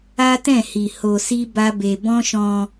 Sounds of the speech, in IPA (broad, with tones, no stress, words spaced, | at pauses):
a˦tɛ̃˦˨hi˨ ho˧si˦ba˦be˧ bɔ̃˦ʃɔ̃˧